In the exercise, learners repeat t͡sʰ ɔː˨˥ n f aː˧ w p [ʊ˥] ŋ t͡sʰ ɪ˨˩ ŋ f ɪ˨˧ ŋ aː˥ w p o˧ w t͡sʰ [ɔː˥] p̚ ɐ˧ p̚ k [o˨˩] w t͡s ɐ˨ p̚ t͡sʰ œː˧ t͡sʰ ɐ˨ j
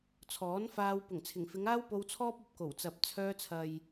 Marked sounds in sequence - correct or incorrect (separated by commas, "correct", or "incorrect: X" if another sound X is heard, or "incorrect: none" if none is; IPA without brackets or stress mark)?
incorrect: ʊ˨˩, correct, correct